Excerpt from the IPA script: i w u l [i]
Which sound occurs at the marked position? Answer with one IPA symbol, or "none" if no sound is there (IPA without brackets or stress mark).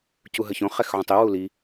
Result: i